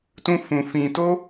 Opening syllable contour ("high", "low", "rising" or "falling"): high